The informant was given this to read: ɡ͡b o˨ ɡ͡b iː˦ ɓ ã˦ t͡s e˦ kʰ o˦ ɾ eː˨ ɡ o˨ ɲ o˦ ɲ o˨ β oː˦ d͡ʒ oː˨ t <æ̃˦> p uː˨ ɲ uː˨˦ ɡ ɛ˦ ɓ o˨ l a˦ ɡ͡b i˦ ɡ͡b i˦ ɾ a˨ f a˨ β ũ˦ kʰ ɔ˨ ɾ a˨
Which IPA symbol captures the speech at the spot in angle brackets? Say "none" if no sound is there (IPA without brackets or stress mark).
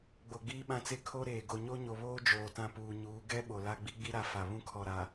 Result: ã˦